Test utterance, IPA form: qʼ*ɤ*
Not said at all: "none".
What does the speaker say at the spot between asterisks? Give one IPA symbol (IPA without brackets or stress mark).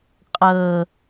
ɤ